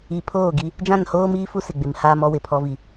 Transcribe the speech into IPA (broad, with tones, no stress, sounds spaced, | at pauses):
i˨ pʰ oː˦˨ ɡ i˦ | d͡ʒ ã˦˨ n h oː˦ m iː˦ f u˦ s ɪ˨ ɡ͡b ɪ˨ m h aː˦ m ɔ˦ w ɪ˨ pʰ ɔ˦ v i˦